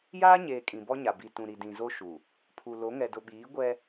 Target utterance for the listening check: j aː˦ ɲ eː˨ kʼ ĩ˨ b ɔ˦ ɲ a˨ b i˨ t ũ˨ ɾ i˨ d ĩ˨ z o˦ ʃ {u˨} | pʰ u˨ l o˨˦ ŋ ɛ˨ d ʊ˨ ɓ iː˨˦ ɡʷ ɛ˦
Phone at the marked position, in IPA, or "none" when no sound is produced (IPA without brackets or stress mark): u˨